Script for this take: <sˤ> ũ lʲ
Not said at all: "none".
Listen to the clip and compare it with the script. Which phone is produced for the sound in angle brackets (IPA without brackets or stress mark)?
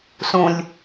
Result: s